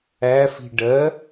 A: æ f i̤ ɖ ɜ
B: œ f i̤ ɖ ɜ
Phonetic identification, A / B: A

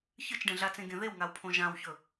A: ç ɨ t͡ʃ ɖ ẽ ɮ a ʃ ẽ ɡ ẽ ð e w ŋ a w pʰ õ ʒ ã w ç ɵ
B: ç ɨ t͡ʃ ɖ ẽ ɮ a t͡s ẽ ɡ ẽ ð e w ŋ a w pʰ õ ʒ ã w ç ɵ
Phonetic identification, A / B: B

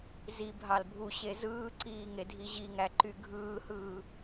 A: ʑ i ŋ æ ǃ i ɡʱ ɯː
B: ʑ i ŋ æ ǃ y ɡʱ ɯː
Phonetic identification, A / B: B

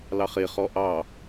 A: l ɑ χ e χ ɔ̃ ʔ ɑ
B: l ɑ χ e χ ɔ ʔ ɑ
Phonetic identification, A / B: B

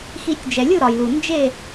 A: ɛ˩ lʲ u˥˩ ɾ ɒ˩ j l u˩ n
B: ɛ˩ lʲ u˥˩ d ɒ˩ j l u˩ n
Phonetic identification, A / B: A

